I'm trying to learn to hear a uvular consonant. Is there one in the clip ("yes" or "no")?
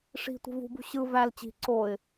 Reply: no